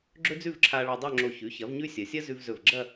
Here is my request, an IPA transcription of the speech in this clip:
ɡ͡ǁɵ˥d͡zʉ˥˧vǁʰa˧ɭa˧ dˤo˥˧ŋ͡ǁo˧˩ çʉ˩˧çɐ˩˧vɲʉ˧ sʲɐ˩˧sʲɐ˥zʉ˧vzɵ˧˩v ɡ͡ǁɐ˥˧

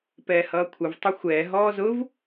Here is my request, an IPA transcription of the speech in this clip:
pɛːhʌːkʷʰəv tˤʊxʷɛː ɦɔːzʊv

